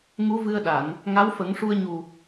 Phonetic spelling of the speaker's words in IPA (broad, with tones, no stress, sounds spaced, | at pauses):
ŋ u˧˥ v ɨ˧ ə̯ ɗ a˨˩˨ n | ŋ a˧˥ w f ə˨˩˦ ŋ ʂ u˧ ə̯ ɲ u˨˩